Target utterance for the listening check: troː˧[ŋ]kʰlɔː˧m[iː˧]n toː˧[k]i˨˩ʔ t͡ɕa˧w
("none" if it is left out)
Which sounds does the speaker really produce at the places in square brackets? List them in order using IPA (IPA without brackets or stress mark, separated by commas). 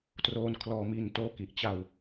n, iː˧, k